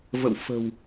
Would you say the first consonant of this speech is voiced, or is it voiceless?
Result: voiced